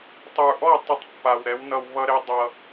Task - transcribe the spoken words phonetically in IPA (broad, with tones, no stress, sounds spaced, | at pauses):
tˤ ə˞˨ ʔ ɔ˦˨ tˤ ʌ˦ tˤ pː a˨ w ɾ ɛ˨˦ w n ʌ˨ w β ʌ˦ ɾ e˦ dˤ ʌ˦